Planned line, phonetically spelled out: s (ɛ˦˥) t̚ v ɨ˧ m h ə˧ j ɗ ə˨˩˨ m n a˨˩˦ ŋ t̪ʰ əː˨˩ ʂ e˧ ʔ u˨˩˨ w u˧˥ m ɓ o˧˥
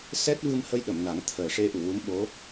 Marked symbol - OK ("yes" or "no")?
yes